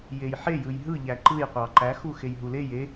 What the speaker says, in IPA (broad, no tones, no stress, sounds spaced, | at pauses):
j e j ħ e j ɯ j ɦ ɯ ʎ æ ǃ ɯ j qʷ ɑ ǃ æ x u x e j ɦ u l e j e